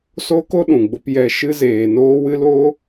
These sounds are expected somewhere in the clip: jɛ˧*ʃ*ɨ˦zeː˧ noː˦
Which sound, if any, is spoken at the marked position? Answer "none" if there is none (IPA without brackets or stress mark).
ʃ